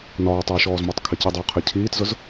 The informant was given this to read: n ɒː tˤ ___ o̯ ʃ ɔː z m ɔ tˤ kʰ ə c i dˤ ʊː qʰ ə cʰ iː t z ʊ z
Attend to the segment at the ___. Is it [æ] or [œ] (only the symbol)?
œ